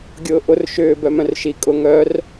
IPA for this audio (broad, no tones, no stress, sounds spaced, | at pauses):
ɡʲ ʊː ʔ ʊ r ʃ ʏː b œ m œ̃ r ʃ i kʼ ʊ ŋ œ r